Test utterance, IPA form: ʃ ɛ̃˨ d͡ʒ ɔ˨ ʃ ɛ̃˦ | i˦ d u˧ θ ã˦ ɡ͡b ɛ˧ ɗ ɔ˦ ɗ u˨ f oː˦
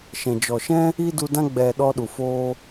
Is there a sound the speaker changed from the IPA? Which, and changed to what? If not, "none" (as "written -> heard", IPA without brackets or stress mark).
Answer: θ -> d